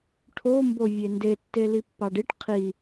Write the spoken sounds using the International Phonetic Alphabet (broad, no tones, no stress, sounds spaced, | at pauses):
ʈʰ o m b o vʲ e n d e tː e l i pː ɑ ɖ i ʈ qʰ i